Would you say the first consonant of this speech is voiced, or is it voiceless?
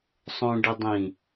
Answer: voiceless